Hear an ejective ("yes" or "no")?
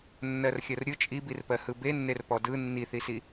yes